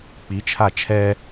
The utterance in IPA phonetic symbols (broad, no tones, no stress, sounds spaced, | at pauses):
k͡p i t͡ʃʰ a t͡ʃʰ ɛ